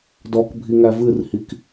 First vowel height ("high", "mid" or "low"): mid